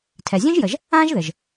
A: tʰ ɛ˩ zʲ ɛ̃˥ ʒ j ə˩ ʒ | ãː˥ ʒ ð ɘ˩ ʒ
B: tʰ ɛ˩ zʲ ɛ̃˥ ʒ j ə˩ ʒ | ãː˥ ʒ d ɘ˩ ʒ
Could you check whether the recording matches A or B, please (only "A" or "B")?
A